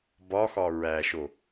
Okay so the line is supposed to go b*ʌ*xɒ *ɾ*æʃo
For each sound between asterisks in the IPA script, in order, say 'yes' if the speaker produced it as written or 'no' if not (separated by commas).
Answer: no, no